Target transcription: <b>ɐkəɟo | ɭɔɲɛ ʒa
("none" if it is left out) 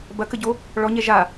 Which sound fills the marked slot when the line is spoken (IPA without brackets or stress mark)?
b